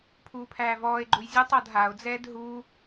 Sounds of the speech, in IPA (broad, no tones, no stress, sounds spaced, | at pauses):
pʰ uː pʰ æː v ɔː e̯ ɡ͡ǃ u j zʲ o tˤ ɔ d ɦ a o̯ d͡z ɛː d ɦ u